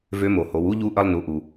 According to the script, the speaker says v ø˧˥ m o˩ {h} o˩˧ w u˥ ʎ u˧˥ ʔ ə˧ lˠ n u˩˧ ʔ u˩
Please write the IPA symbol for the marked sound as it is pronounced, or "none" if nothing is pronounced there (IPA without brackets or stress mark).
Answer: h